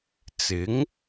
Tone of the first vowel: rising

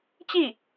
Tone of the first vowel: falling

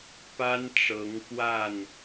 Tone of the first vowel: high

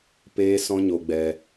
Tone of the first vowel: high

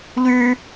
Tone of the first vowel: high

